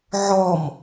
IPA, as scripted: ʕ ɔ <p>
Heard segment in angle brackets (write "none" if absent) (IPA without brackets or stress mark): m